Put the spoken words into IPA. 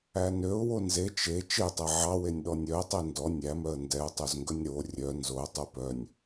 æ n ø ʊ̯ w o n z e t͡ʃ e t͡ʃ e tˤ ɛ ʕ ɑ w e nʲ ɗ ɔ nʲ œ ə̯ tˤ e n d ɔ nʲ æ m œ ə̯ n d ɛ ʊ̯ tˤ o z ŋ ɡ ɵ nʲ ɾ o rʲ œ n z o ə̯ tˤ u p œ nʲ

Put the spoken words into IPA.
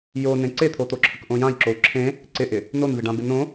j o n ẽ ǀ e t̪ʰ o t̪ o ǁʰ ə k ʔ õ j ã j ǁ o u̯ ǁʰ ẽ | ǀ ɪ ʔ ɪ | n o n v ɪ ɖ ã b ɪ n õ

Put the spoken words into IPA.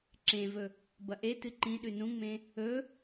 ǁ ẽ v ɵ | b ɐ ʔ e t ɨ ǃ ĩ ɗ ʉ n ũ ŋ͡m ẽ | ɵ

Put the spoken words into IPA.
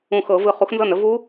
ũ˧˩ x ɤ˧˩˧ v ɯ˧˩ χ u˨˥ x n z ɤ˥˩ n ə˨˥ v u˦˥

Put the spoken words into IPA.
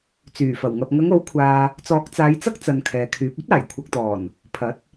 t͡s yː˨˩ f ɐ˨˩ w ŋ ɐ˨ p̚ ŋ ɐ˨˧ ŋ o˨˥ w kʷʰ aː˨ | t͡s ɔː˨˥ k̚ t͡s aː˨˧ j t͡s ɐ˥ k̚ t͡s ɐ˧ n kʰ ɛː˨ kʰ yː˨˥ p̚ ɐ˥ t̚ aː˨˩ j kʷʰ ɐ˨ k̚ t̪ ɔː˨˩ n | pʰ ɐ˨˥ t̚

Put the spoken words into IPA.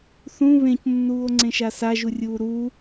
θ ũ β ẽ c nː uː o̯ ŋ͡ǀ ẽ ʃ a s a ʒ u rʲ uː ɾ uː

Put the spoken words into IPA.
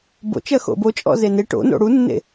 b o̰ t͡ʃ ɜ x o̰ b o t͡ʃʼ ɔ̰ z e n e ʈ o̰ n o̰ ɽ u nː ḛ

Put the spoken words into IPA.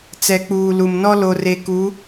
t͡s ɛ˨ k͡p uː˨ l u˨ m n ɔ˦ l o˨ r e˨ k u˨˦

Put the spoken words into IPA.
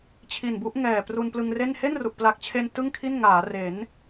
t͡ɕʰ i˨˩ n b u˦˥ ʔ ŋ ɛː˨˩ p r u˧ n p l ɯ˧ ŋ r e˥˩ n h e˥˩ n r u˨˩ ʔ p l a˨˩ k̚ t͡ɕʰ e˧ n t ɯ˥˩ ŋ kʰ i˥˩ n ŋ aː˩˦ r e˩˦ n

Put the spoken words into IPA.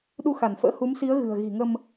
ɗ u˧ x a˧˩ n f ə̰ː˧˥ h u˨˦ m s i˨˦ ə̯ ɣ ɨ̤˨˩ ə̯ ɣ i̤˨˩ ŋ ə˧ m

